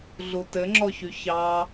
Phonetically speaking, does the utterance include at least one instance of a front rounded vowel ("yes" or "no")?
yes